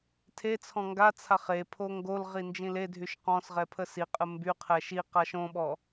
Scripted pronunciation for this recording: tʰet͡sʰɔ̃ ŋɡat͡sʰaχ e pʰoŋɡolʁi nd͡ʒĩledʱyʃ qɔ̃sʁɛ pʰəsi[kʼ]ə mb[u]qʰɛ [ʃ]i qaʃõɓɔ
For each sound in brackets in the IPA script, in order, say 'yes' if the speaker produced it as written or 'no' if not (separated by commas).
no, no, yes